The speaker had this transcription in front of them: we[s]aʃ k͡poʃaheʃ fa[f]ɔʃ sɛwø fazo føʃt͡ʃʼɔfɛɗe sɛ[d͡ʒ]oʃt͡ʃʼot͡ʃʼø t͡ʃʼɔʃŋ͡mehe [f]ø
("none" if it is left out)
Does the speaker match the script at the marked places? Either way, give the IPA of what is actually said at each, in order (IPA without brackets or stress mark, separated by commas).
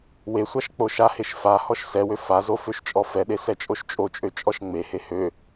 sʷ, h, t͡ʃʼ, h